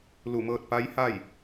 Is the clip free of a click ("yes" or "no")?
yes